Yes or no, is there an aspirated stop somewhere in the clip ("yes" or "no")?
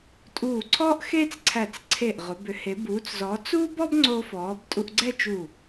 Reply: yes